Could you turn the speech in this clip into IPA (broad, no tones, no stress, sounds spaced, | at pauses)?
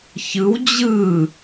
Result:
ç ɯ w d͡ʑ ɯ